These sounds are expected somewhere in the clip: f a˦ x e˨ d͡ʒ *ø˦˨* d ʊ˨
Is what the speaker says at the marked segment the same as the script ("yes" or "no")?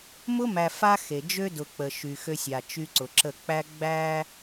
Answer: no